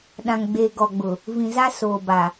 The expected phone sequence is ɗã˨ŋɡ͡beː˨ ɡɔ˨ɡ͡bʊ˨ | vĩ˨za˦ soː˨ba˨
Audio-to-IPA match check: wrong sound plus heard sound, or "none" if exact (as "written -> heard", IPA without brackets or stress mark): none